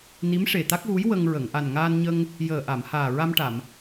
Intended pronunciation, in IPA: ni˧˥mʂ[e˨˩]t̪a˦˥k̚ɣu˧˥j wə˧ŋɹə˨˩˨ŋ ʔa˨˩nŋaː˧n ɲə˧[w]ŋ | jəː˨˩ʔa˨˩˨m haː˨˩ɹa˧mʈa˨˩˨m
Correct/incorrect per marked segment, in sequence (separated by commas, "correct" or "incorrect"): correct, incorrect